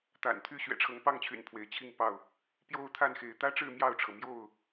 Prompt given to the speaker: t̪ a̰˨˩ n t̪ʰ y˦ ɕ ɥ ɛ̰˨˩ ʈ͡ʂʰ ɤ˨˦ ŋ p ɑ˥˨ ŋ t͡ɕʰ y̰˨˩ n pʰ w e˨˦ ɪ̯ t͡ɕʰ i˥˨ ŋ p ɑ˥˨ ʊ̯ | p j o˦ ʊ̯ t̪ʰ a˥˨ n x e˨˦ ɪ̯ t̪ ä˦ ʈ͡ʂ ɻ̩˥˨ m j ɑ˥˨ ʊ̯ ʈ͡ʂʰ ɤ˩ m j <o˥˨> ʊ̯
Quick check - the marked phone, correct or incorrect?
correct